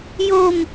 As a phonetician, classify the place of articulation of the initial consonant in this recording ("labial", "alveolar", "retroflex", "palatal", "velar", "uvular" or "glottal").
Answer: palatal